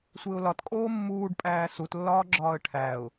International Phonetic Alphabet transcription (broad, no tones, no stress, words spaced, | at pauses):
sʷeʊ̯lɒtkʼoː mːuːɖpʼæː sutlːɒːɡ͡ǁɒːə̯ ʈʰæʊ̯